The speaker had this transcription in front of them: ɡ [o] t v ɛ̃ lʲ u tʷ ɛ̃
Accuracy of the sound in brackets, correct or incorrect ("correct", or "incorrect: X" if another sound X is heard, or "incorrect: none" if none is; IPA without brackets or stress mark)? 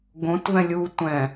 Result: incorrect: õ